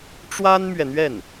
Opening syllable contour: high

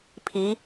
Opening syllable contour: rising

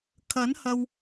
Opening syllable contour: rising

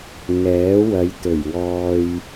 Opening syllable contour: rising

